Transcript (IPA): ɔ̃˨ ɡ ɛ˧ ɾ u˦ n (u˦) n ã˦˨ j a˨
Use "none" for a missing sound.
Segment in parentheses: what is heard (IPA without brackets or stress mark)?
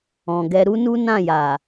u˦